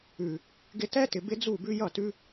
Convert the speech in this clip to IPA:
ʉ˨ | ɡɪ˧tɛ˦tɪ˨ bɪ˦d͡zu˦˨bʉ˦ jʌ˦˨tʉ˦

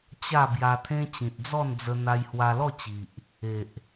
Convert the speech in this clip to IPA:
t͡ɕa˥˧ bja˧t̪ʰẽ˦ t͡ɕĩ˨t̚d͡zɔ˥˧nd͡zə˧ n̪a˧jhwa˧lɔ˥˧t͡ɕi˨ʔ | e˨ʔ

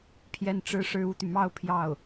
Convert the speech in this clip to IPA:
pʰjɛ˥˩nʈ͡ʂɻ̩˥ʂɻ̩˥˧ u˥˩t̪y˩mɑ˥˧ʊ̯ pʰjɑ˥˩ʊ̯

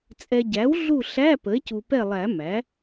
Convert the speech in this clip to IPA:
t͡sʼɛ˨ɟæ˩˥w ɮu˦˨ɬæ˧˥˧ pə˩˥e̯cu˨pɛ˦˨lˠæ˨˩˦ mæ˩˥

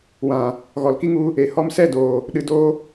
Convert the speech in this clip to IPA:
wã˨ | ɣɔ˨lki˦ŋu˧ | e˨hɔ˧msɛ˦˨doː˨ | ɗɨ˨doː˧

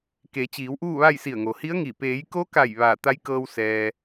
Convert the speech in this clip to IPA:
ke˩˧t͡ɕiː˩˧w ʔuː˥˨ʋa˥˨j si˧˩ə̯ŋo˩hi˧˥ə̯ŋi˧˩ peː˩˧jko˧˥ ka˧˩j ʋaː˧˩t̪a˧˥jkɤː˧w sɛː˩

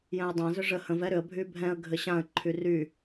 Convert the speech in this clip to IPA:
jɛ̃ə̯dˤã zʏʐə hə̃v ɛɾʏə̯ bʱybʱɛ̃ə̯ ɡʱɘɕãə̯ ǃʰyry

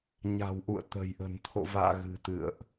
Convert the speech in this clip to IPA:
ɲa̤˨˩wʔṵ˧˨ə̯ t̪ə̤˨˩jʔə̤˨˩n t̪ʰo̰˧˨va̰ː˧˨ ɣɨ̤˨˩t̪ɨ̰˧˨ə̯ʔ

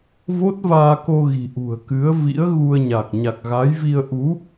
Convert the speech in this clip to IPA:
vo˦˥t̚vaː˧ko˧ɣi̤˨˩ ʔṳ˨˩ə̯kɨ˨˦ə̯vḭ˧˥ə̯ ɣu˧ə̯ ɲa˨˩k̚ ɲa˨˩k̚ɣa˨˦jvi˧ə̯ ʔu˨˦

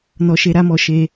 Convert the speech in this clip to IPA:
nɔ˧ʃe˧ ɾa˦mɔ˧ ʃe˧

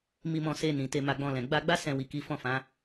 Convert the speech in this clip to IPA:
mi˧mɔ̃˧se˧ nĩ˨te˧ ma˧ɡ͡bɔ̃˧lɛ̃˨ ɡ͡ba˧ɡ͡ba˦ sɛ̃˧wi˨ ki˨˦fɔ̃˦˨fã˨˦

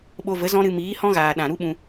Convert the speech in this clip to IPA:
ɓo˧və˨˦zɔ̃˦ɾɨ˧ miː˨˦hɔ̃˦ɣaː˨ ɗã˨ɾu˦ɓũ˧

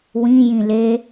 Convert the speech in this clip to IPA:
wĩjĩ le

